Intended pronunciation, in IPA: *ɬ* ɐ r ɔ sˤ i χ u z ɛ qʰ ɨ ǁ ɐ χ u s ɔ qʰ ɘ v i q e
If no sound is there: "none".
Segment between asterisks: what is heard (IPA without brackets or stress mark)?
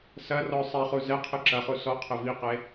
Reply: s